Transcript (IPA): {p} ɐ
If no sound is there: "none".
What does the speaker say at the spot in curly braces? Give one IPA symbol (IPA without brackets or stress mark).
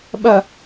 ɓ